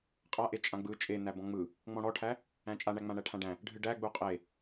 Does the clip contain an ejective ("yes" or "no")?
yes